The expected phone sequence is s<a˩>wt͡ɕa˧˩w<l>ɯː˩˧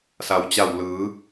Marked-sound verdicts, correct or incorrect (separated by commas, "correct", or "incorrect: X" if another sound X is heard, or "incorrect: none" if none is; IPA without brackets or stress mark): correct, correct